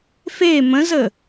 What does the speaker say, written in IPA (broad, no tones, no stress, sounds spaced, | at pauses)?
f e m ə̃ z ə